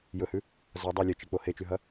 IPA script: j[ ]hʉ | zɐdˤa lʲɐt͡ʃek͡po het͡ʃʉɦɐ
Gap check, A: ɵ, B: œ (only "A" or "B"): A